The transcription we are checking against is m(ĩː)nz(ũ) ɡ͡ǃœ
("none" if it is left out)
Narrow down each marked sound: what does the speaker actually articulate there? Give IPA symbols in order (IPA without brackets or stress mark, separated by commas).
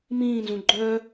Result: ĩː, ũ